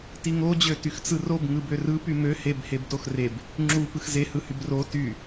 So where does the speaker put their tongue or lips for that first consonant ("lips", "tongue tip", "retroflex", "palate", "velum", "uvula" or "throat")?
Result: tongue tip